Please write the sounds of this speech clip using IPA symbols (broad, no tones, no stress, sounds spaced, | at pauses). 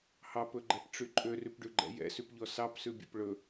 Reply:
h ɑ p ɵ ɡ͡ǃ ɛ p ʈ͡ʂ y ǃʼ ø r y p ɖ ʉ ɡ͡ǃ ɛ̰ j ɛ̰ s y p ʎ ɔ s ɑ p s ʉ bʲ ɛ̰ p ɭ ɵ